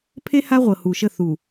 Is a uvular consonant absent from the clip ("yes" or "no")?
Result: no